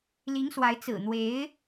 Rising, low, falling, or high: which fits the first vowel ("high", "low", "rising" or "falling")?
rising